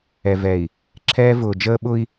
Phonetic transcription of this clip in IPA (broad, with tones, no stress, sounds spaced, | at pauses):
ɛ˨ v ɛ˨ i̯ | ǁʰ ɛː˦ v ʊː˨ d͡ʒ əː˦ ɓ ʊ˦ i̯